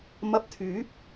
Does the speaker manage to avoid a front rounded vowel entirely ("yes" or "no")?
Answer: no